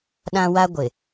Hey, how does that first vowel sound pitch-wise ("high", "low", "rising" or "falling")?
high